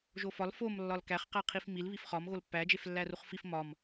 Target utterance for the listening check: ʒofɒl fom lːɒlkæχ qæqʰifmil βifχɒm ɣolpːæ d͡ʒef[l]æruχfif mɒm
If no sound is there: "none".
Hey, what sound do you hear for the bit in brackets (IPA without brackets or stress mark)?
lː